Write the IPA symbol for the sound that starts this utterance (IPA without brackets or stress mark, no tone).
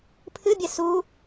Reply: pʰ